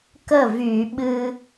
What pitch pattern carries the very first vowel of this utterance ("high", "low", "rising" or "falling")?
falling